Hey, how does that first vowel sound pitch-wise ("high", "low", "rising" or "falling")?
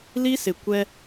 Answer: high